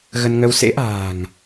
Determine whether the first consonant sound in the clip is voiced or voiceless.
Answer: voiced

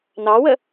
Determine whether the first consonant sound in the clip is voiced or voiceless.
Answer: voiced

